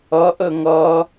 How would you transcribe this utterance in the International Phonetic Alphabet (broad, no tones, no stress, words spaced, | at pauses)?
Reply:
ʌʔə ŋʌ